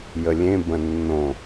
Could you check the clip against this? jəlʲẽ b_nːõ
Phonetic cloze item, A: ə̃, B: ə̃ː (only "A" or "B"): A